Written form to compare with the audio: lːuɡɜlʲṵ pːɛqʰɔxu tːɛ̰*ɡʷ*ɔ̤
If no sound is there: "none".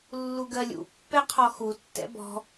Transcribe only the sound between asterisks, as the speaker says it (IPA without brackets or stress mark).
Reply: b